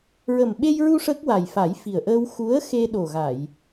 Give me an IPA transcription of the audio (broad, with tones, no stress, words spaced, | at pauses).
ɹə˨˩mɓe˧jɹu˧ ʂə˦˥k̚wa˨˩jfa˨˩˦jfi˨˩ə̯ ʔə˧wxu˧˥ə̯ xe˧ɗo˨˩ɣa˨˩˨j